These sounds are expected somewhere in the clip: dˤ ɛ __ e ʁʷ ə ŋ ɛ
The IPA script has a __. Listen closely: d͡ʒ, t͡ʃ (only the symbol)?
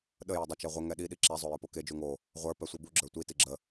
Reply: t͡ʃ